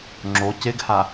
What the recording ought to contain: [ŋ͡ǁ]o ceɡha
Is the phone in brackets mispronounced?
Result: no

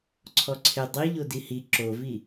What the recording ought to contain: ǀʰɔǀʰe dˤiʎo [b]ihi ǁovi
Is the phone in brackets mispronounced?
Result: yes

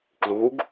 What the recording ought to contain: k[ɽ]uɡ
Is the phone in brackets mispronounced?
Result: yes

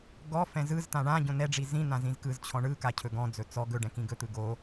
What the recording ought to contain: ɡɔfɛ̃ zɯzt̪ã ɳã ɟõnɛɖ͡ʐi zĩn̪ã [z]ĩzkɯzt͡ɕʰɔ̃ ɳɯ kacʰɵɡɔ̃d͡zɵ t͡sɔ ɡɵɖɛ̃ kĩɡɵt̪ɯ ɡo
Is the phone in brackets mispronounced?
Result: no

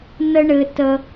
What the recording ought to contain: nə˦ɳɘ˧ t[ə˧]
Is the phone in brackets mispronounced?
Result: no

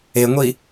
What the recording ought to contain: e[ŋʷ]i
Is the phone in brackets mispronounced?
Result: no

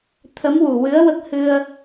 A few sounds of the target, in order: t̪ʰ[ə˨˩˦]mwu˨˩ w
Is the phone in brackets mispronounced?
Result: yes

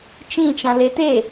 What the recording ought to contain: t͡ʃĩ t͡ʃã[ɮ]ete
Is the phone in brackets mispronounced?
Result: yes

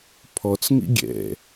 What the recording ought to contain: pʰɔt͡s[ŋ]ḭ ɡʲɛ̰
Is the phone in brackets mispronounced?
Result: no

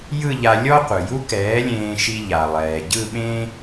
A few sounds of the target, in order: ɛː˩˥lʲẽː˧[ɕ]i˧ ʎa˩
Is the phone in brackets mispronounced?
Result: yes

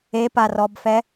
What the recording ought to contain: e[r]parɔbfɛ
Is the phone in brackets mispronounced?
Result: yes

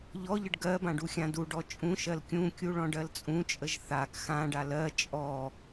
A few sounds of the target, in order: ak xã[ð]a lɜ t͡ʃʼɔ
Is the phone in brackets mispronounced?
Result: yes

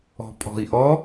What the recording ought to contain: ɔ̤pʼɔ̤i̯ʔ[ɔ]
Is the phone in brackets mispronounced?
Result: no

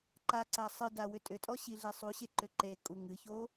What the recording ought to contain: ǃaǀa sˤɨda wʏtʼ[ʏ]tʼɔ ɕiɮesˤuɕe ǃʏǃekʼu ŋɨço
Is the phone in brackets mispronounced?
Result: no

